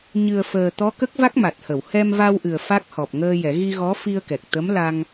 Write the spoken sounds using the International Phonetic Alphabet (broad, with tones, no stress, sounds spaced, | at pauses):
ɲ ɨ˨˩ ə̯ f əː˨˩ t̪ ɔ˧˥ k ə˦˥ k̚ v a˦˥ k̚ m a˨˩ t̚ h ə˨˩˨ w h ɛ˧ m v a˧ w ʔ ɨ˨˩ ə̯ f a˦˥ k̚ h ɔ˨˩ p̚ ŋ əː˧ j ɛ˨˩˦ ɣ i˧ ɣ ɔ˧˥ f i˧ ə̯ k ɛ˨˩ k̚ t̪ ə˧˥ m l a˧ ŋ